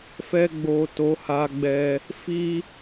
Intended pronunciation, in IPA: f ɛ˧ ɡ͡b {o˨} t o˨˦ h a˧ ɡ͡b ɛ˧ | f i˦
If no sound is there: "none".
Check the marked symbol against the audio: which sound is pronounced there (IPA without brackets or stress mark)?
o˨